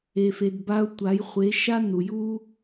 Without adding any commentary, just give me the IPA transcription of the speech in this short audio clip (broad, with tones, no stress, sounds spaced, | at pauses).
e˨ f e˨ d b a˧ ʊ̯ tʷ a˨˦ j χʷ e˨˦ ʃ a˦ n u˨ j u˧